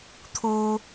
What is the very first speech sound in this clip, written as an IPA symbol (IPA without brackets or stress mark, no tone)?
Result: t̪ʰ